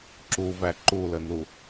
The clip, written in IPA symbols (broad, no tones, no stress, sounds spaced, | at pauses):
ǁ u v æ ǃ u l ə n u